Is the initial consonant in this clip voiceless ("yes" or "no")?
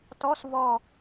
yes